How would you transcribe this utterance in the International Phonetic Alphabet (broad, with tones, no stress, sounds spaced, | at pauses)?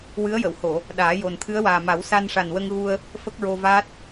w ɨ˧˥ ə̯ j ə˨˩˨ w h o˨˩˨ | ɗ aː˨˩˦ j o˨˩ n t̪ʰ ɨ˧˥ ə̯ w aː˨˩ m a˨˩˦ w s a˧ n ʂ a˨˩ n w ə˧ ŋ ɣ u˧ ə̯ | f ə˦˥ k̚ ɹ o˧ v aː˦˥ t̚